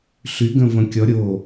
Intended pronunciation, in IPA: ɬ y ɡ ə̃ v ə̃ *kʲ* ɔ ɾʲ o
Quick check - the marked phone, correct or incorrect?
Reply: correct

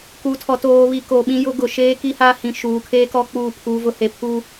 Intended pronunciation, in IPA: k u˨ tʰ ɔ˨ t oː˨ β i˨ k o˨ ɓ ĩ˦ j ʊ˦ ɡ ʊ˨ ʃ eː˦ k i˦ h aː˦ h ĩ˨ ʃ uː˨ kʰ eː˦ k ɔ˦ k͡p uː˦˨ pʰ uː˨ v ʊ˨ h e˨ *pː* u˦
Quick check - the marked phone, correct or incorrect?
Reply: incorrect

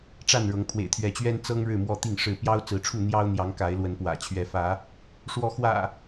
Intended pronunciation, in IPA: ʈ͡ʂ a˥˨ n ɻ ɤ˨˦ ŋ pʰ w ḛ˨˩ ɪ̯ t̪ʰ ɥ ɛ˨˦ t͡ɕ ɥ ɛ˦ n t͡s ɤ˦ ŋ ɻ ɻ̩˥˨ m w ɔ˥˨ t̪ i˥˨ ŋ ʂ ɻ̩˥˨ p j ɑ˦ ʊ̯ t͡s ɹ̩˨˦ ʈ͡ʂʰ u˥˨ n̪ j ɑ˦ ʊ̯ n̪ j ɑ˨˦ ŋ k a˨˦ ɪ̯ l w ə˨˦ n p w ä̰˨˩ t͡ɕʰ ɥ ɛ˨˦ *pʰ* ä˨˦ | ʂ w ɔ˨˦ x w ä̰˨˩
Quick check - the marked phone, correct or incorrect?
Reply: incorrect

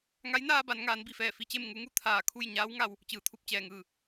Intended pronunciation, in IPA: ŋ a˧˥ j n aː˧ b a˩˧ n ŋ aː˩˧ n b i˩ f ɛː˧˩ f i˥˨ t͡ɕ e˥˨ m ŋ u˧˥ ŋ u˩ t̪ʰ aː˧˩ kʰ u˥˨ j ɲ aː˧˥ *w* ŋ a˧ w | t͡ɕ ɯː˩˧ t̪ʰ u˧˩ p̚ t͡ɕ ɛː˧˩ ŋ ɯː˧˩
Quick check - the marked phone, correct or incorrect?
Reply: correct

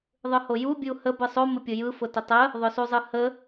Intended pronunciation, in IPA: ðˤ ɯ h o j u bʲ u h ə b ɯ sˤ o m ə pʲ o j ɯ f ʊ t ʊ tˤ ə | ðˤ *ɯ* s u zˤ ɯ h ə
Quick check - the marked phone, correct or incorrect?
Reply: incorrect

